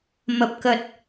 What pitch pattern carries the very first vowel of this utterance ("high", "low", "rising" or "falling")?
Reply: low